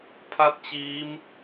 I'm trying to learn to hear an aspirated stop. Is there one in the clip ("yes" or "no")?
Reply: yes